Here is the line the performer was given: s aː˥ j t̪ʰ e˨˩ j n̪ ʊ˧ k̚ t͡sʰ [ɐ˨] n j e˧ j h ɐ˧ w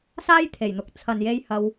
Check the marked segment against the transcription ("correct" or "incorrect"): correct